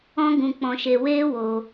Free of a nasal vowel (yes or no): no